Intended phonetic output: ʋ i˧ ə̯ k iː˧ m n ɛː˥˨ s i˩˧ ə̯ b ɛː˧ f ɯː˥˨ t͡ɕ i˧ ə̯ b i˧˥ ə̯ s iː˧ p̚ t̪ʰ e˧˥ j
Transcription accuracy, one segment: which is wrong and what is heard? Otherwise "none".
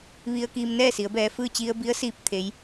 none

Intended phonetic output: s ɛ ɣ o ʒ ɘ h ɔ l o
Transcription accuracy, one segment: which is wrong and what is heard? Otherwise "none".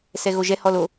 ɘ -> ɛ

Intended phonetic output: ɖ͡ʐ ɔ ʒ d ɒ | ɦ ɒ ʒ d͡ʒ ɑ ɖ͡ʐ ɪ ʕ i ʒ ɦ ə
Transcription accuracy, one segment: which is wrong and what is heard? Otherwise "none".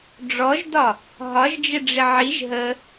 ɑ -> ə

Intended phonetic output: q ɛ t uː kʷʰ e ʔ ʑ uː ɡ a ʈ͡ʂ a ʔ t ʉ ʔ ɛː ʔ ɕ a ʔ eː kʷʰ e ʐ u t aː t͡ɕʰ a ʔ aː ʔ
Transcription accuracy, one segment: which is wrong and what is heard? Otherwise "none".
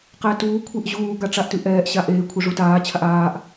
none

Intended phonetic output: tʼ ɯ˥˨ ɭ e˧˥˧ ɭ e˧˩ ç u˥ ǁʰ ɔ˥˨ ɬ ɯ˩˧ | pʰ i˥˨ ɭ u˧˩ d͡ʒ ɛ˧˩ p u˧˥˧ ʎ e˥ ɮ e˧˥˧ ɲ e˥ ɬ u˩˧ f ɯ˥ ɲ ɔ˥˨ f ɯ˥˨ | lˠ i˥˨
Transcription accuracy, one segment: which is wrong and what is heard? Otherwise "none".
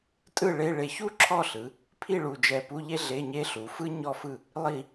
none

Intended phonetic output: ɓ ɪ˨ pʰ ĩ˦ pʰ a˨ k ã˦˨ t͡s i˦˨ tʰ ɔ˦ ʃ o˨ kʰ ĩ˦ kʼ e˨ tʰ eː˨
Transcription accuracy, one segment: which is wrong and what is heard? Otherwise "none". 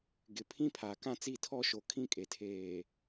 ɓ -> ɡ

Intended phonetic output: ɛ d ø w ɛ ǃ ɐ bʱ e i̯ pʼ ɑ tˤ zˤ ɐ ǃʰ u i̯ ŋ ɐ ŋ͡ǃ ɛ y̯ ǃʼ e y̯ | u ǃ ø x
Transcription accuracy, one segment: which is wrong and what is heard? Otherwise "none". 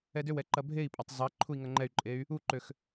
none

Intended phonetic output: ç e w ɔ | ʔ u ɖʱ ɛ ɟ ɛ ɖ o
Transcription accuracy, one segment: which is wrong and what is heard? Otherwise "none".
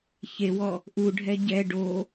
none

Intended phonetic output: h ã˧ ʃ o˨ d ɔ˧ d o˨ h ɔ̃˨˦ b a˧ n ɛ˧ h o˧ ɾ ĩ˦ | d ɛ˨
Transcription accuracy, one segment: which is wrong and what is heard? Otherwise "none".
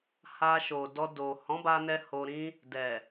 ã˧ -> a˧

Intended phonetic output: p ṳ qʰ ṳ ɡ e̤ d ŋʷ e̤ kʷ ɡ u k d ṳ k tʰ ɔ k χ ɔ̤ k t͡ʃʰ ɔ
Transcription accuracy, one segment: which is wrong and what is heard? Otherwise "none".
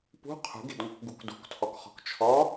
kʷ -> k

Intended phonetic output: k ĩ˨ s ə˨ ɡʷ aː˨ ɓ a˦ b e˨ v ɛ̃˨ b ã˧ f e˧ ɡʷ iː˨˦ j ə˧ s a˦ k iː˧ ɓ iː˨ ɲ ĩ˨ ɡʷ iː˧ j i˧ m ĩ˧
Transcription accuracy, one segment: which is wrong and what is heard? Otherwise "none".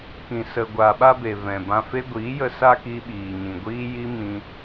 none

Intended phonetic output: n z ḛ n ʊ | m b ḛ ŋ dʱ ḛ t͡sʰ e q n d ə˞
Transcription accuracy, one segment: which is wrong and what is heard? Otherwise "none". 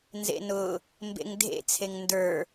q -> ŋ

